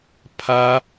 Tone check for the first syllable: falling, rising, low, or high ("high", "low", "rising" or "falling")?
high